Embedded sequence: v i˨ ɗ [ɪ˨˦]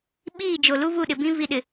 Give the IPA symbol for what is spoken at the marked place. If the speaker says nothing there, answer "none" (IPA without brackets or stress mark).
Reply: ɪ˨